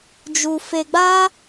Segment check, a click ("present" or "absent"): absent